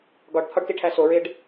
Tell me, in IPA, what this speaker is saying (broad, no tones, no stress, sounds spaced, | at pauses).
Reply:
ɡ ɒ ɖ t̪ʰ ɒ ɖ t i ʈʰ æ s o ɹ e ɖ